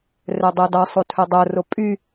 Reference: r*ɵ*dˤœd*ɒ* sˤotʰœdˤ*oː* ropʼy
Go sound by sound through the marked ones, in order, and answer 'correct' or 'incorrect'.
incorrect, incorrect, incorrect

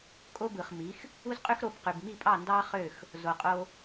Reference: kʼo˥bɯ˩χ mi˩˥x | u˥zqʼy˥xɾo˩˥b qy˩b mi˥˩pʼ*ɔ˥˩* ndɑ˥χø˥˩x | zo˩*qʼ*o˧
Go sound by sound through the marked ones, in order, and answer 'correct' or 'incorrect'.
incorrect, correct

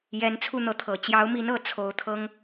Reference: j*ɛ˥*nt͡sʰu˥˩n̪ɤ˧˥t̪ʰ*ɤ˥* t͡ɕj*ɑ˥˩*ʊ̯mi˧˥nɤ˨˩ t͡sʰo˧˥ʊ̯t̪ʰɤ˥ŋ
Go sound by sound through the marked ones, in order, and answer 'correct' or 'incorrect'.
incorrect, incorrect, incorrect

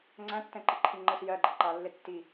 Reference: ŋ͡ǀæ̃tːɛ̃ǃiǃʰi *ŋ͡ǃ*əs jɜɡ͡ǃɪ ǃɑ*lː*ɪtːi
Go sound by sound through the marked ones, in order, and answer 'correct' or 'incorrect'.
correct, correct

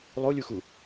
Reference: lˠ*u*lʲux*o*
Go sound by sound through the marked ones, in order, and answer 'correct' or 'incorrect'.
incorrect, incorrect

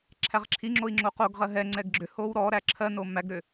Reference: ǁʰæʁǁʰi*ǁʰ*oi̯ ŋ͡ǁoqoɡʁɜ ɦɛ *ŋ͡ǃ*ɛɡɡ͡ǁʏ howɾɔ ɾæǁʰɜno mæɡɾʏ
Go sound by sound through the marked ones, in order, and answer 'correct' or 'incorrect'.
incorrect, incorrect

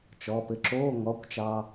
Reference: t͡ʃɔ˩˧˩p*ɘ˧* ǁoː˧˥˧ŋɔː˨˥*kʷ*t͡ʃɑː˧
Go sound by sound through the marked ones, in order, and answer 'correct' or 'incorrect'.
correct, correct

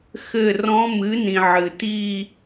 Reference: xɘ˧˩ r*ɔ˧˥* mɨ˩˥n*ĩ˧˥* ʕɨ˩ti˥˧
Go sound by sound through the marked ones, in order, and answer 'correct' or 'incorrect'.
incorrect, incorrect

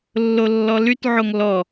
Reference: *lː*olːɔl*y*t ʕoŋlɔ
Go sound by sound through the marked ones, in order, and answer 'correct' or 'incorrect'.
correct, correct

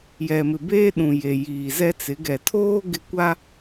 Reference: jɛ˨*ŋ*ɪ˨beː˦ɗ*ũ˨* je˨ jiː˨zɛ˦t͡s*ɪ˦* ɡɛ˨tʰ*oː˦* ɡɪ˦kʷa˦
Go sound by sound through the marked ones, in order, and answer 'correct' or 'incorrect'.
incorrect, correct, incorrect, correct

